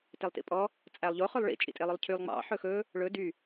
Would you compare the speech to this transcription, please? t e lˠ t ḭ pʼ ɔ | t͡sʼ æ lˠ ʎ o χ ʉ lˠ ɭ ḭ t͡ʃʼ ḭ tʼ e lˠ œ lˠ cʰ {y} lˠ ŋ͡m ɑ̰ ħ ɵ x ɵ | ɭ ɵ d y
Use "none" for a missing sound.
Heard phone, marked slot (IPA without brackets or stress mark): y